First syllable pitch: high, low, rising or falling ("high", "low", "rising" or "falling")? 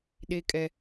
high